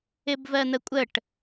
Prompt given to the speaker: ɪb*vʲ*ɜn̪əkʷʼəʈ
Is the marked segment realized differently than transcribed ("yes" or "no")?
yes